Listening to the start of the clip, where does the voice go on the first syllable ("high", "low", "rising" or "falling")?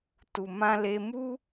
low